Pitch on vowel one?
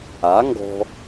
rising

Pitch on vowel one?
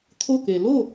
falling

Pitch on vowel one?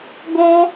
high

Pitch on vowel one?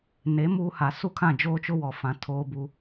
rising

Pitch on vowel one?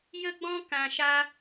high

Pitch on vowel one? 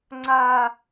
high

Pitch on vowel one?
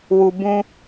low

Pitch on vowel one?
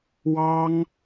high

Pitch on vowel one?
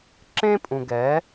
high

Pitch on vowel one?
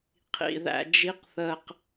low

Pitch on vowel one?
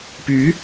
rising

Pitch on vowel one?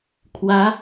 rising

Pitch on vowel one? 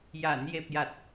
low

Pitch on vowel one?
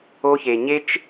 high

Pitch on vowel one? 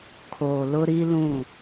low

